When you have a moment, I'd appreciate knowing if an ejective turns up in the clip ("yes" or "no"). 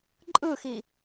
yes